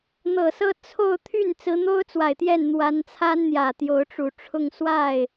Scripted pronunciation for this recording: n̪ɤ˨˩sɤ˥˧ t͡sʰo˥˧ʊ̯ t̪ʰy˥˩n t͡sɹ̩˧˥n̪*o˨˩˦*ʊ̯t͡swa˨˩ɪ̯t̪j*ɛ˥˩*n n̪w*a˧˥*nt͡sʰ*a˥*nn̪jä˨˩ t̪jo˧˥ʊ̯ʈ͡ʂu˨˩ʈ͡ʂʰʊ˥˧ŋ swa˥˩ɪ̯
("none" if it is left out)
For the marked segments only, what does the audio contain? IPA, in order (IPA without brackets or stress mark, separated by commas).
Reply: o˥, ɛ˥˩, a˧˥, a˥